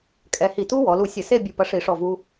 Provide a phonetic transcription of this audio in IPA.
kʼ ɛ˧ h i˧˩ t u˦˥ w ɔ˩˧ l u˧˩ sʲ ɘ˧˩˧ s e˥˧ bʲ u˧ p ɐ˧ ʂ i˧˩˧ ʂ ɔ˧˩ v u˧

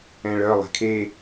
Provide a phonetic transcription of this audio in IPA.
ɛ̃ ɭ œ lˠ ɛ̤ kʰ e

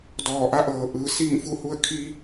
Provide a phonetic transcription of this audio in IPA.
d ɔː˧˩ ʔ a˧˥ ʔ ɤː˩˧ ʔ ɯː˩ s iː˥˨ ŋ f u˥˨ h u˥˨ ə̯ kʰ i˧

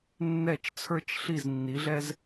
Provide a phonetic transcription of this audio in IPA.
nː ɛ˦˨ t͡ʃ t͡sʰ ə˞˦ t͡ʃ ɬ i˦˨ z nː i˨˦ ɮ ɛ˦ z

